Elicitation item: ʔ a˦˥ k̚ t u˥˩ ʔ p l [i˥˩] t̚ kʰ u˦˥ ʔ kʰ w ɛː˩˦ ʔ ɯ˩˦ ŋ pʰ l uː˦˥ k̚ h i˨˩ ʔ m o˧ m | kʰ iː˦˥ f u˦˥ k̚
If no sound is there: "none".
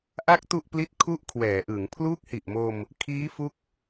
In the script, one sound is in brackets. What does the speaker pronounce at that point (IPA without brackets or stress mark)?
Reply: i˥˩